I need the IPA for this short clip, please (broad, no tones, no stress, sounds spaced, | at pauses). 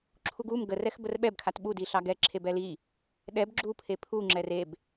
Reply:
ǁʰ u ɡ u m ɡ ə r ɛ x b ə r ɓ ɛ b kʰ a t ɓ u d i ɬ ɑ ɡ ɛ ǁʰ e b ɛ l i | ɗ ɛ b ɡ͡ǁ u pʰ e pʰ u ŋ͡ǁ ɛ r e b